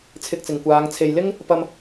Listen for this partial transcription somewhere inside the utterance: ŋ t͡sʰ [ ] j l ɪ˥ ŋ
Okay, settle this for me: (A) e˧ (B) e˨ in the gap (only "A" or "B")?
B